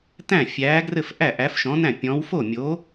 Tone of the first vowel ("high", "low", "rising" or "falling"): falling